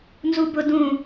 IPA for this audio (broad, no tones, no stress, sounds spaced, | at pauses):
n z u b ʊ d ũ